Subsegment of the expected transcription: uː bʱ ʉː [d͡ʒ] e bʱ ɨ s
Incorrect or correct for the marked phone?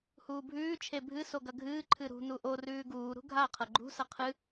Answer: incorrect: t͡ʃʰ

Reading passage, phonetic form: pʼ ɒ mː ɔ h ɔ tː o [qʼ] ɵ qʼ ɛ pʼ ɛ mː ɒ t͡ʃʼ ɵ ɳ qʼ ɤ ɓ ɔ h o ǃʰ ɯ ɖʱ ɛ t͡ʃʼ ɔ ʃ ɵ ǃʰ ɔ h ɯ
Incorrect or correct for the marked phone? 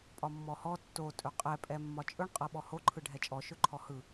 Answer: incorrect: tʼ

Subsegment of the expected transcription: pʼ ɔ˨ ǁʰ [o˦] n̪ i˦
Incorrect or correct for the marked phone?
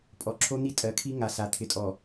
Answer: correct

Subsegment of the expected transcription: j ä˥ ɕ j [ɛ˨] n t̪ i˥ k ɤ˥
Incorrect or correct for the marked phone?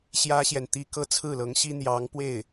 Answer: correct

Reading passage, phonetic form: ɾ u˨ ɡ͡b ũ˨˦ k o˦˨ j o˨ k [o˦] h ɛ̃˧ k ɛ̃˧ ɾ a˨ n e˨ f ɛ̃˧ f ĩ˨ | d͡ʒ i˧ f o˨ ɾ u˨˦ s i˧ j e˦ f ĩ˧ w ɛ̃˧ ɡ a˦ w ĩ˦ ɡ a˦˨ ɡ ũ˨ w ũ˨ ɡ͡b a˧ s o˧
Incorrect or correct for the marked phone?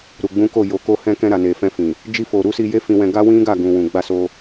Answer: incorrect: o˧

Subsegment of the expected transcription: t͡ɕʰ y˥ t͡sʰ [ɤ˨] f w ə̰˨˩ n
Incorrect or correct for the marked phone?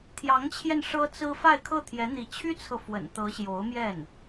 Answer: correct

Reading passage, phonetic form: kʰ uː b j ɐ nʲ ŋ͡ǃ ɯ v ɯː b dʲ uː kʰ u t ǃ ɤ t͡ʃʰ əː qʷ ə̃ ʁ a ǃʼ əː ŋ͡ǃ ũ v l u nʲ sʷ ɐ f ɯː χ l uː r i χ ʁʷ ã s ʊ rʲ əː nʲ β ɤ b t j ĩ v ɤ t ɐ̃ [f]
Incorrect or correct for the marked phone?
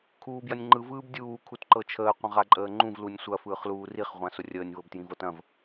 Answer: incorrect: v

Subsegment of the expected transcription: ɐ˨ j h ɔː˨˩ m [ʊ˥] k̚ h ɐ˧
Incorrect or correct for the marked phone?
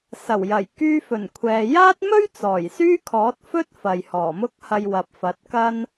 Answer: correct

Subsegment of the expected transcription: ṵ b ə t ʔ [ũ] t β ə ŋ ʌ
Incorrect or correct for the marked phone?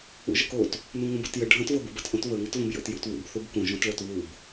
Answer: incorrect: õ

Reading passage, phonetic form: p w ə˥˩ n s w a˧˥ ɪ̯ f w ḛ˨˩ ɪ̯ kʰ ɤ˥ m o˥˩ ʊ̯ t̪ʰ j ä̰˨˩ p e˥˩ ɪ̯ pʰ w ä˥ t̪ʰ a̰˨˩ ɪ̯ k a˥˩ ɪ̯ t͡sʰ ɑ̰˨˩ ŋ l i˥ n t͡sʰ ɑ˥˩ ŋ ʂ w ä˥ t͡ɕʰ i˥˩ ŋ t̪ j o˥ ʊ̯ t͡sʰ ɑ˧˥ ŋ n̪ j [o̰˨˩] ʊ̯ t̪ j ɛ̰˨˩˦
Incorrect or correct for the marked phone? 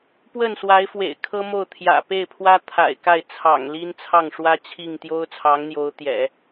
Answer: incorrect: o˧˥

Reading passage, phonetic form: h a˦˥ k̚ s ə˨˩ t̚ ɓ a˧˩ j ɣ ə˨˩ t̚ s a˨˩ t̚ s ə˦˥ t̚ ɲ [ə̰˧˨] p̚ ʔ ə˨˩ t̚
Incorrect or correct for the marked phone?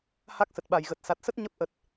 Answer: incorrect: ə˦˥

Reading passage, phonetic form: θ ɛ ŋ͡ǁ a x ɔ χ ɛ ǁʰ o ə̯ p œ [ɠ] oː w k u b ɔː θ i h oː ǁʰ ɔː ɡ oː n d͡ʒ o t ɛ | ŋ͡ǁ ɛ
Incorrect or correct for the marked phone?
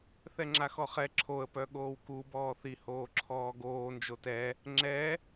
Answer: correct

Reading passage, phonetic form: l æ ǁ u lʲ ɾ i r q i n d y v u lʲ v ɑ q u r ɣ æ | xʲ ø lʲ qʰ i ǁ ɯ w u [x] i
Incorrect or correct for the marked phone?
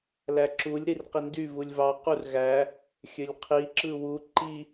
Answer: incorrect: ǃ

